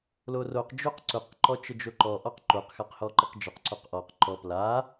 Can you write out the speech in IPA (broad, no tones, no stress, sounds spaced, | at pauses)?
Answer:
l o r o q d͡ʒ o q ǀ ʊ q ǃ ɔ t͡ʃ ə d͡ʒ o ǃ ɔ ʔ ɔ q ǃ o q x a q h ɔ ǃ ə q d͡ʒ ə q ǀ o q ʔ ɔ q ǃ ɔ p l a